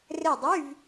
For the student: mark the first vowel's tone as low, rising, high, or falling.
falling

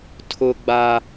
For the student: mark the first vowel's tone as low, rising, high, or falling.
high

